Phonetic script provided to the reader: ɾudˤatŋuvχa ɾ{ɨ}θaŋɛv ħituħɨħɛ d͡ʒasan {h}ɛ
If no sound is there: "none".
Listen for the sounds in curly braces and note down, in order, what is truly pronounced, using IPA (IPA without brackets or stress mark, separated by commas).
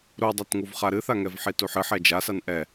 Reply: ɨ, ʔ